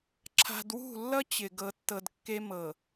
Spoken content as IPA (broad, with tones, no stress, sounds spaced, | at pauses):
ǁʰ a̤˨ d w ṳ˦˨ lː ʌ˦ t͡ɕ ɪ˨ ɡ ɤ˨ tː ɤ˨ d kː e˦ m ɤ˨